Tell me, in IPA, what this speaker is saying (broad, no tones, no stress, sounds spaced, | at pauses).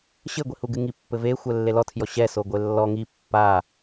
ɕ ɘ ɡʷ i h u ɡ ɨ ŋ i pː ɘ v e xʷ ɛ lː e l ɔ tʰ j ɔ ɕ ɛ s o ɡʷ e lː ɔ ŋ i pː a